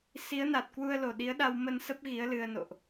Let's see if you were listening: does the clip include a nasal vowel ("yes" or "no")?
no